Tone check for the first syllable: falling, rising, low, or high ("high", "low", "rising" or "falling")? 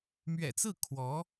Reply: low